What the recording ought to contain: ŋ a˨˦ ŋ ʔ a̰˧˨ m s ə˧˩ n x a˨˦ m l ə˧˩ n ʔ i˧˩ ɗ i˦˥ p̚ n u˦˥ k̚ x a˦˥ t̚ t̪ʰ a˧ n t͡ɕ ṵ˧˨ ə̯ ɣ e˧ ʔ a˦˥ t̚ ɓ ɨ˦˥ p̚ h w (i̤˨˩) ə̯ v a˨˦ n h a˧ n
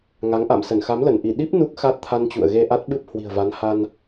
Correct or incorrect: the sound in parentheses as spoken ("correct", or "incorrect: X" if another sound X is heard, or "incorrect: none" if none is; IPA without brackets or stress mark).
correct